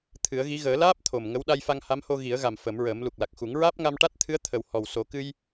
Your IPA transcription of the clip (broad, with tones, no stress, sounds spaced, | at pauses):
t̪ʰ ɨ˨˩˦ ə̯ ɣ i˧˥ ɣ əː˨˩˦ l aː˦˥ p̚ t̪ʰ o˨˩ m ŋ ə˧˥ w ɗ a˧ j f a˧ ŋ h a˧˥ m h o˧ ɣ i˨˩˦ ə̯ ɣ a˨˩ m f ə˨˩˦ m ɹ əː˨˩˦ m l u˨˩ k̚ l a˨˩ k̚ x u˨˩˦ ŋ ɹ aː˦˥ p̚ ŋ a˧ m ʈ a˦˥ t̚ t̪ʰ ɨ˧˥ ə̯ t̪ʰ ə˨˩ w h ɔ˨˩ w s o˨˩˦ k ɨ˧ j